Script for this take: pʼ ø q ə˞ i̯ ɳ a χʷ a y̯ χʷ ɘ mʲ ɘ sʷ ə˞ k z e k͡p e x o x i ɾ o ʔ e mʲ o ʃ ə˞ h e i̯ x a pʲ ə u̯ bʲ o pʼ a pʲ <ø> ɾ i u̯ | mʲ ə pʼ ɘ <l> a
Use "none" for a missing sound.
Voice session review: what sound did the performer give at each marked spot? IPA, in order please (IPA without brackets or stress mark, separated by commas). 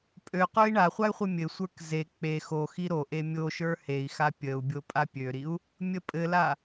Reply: ø, l